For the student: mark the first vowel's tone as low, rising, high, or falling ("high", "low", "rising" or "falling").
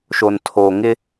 low